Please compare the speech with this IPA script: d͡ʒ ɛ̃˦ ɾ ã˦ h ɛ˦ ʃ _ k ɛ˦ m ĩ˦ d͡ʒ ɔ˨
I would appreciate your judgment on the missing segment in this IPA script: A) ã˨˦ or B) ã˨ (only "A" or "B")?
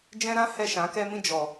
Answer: A